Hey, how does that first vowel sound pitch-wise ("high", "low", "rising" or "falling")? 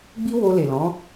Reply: high